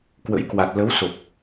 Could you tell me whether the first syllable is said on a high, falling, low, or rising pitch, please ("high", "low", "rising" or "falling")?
rising